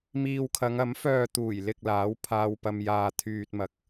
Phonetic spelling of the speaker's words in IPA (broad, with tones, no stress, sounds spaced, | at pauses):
m iː˧ w kʰ ɐ˨˧ ŋ ɐ˨˥ m f œː˨ t̪ uː˨˩ j l ɪ˨ k̚ l aː˨˥ w pʰ aː˧ w p ɐ˧ m j aː˧ t̪ʰ yː˧ t̚ m ɐ˧ k̚